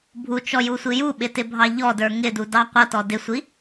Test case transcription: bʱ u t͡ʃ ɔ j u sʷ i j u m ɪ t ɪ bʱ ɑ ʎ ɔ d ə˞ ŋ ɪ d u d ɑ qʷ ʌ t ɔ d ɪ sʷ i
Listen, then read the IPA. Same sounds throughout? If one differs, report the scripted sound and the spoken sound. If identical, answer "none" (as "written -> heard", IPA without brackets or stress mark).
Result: m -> ɓ